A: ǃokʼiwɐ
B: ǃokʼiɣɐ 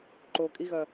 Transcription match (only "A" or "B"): B